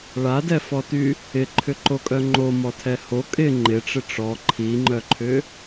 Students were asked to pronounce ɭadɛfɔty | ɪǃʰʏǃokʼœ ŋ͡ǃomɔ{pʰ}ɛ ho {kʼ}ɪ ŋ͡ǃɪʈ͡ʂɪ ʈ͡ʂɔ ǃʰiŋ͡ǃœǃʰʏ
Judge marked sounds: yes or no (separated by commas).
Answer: no, yes